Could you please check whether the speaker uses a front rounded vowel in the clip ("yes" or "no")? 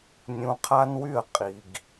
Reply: yes